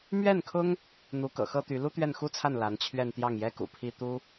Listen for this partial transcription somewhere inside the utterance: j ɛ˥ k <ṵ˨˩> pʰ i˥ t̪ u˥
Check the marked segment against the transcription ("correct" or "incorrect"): correct